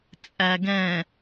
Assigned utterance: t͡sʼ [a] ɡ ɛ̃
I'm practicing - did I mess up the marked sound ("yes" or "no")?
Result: yes